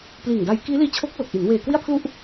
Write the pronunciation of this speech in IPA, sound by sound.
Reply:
pliː˨˩ŋda˧j kiː˦˥liː˦˥t͡ɕʰo˦˥k̚ lo˨˩k̚ʔi˩˦n weː˨˩ kwi˥˩a̯pʰlu˥˩ʔ

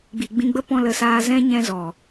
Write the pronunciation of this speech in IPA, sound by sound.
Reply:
ɡ͡bi˨ɡ͡bĩ˧ɡ͡bə˦ pɔ̃˧lə˨saː˧ zɛ̃˦ɲɛ̃˧ zɔ˨

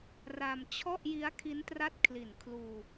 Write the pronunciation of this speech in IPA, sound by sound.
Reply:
ra˧m t͡ɕʰɔ˥˩ʔji˦˥a̯ kʰi˦˥n tra˥˩t̚kʰli˨˩n kʰluː˧

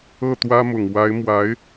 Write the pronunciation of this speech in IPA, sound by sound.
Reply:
ɤ˥˩t̪wä˥mʊ˨˩ŋ wa˧˥ɪ̯mwa˧˥ɪ̯

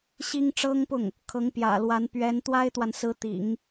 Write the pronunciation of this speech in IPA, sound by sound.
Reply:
ɕi˥ŋʈ͡ʂɤ˥ŋpʊ˥˩ŋ | kʰɤ˧˥ŋpjä̰˨˩lwa˧˥n pɥɛ˧˥n t̪wa˥ɪ̯t̪wa˨nsɹ̩˧˥ t̪ḭ˨˩˦ŋ

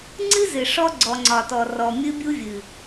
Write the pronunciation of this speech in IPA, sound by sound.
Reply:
ŋ͡ǀɨ˦zɨ˨ ʂɔ˦ ɡ͡ǀɔ˨ŋ͡ǀɒ˨tɔ˨rɔ˨ mʲɨ˦bʲu˦vʲɨ˨

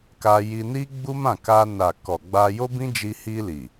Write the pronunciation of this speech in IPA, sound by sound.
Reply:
ka˧ji˧ni˦ ɡ͡bu˦mã˦˨ka˧ na˨ kɔ˨ɡ͡ba˧ jo˦bĩ˦ d͡ʒi˧hi˧ li˨

